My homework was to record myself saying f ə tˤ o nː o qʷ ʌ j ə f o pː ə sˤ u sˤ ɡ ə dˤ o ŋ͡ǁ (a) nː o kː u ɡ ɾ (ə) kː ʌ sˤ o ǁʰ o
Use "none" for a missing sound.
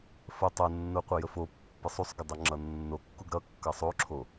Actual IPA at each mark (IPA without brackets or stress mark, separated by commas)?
ʌ, ʌ